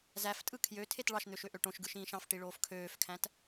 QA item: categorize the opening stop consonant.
ejective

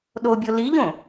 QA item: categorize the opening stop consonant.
implosive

